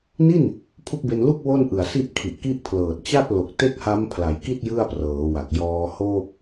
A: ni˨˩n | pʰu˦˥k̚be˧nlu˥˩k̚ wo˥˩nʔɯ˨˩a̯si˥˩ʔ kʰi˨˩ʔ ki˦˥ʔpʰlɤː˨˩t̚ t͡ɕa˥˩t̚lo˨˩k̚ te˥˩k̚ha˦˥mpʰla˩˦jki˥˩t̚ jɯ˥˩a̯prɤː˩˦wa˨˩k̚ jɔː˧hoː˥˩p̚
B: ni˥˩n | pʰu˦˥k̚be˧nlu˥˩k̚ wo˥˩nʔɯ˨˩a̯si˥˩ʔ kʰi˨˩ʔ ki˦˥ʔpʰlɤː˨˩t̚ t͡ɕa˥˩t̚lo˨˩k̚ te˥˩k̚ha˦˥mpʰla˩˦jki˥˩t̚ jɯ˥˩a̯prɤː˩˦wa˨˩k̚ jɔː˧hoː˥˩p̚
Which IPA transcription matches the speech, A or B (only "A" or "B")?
B